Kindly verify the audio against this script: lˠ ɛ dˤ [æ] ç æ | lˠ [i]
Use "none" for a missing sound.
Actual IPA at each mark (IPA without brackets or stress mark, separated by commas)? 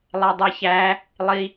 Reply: ɛ, i